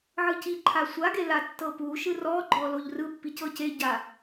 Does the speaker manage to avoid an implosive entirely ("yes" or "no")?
yes